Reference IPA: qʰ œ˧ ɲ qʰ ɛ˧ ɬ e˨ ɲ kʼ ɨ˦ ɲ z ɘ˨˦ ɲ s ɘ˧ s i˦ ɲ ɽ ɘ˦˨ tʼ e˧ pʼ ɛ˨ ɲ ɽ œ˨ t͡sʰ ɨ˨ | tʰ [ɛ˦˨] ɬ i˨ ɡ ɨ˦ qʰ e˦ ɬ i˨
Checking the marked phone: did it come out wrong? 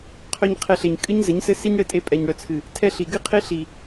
no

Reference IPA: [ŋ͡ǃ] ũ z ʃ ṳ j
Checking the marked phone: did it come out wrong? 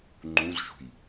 no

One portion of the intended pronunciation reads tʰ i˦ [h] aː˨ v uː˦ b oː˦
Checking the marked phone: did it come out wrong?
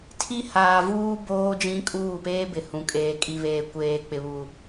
no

